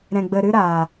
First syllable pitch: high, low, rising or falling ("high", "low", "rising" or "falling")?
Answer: low